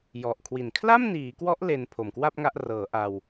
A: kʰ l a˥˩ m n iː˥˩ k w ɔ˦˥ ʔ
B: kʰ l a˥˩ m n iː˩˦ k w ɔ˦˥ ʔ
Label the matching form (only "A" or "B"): B